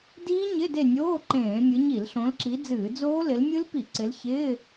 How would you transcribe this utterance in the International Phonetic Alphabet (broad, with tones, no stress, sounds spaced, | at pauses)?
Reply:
d iː˦˥ ɲ ɪ˧˥˧ d e˦˨ nʲ oː˧˥˧ ǃ ẽː˧˩˧ mʲ ɨ˨˦ ɲ i˧˩˧ l ɬ õ˨˦ l ǁ i˨˦ d͡z ɨː˧˩˧ d͡z oː˦˥ l ɪ˨˦ l mʲ ɨ˦˥ l p i˧˩˧ ǀ ɪ˨˦ l ç ɪː˧˥˧